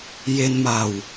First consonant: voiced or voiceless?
voiced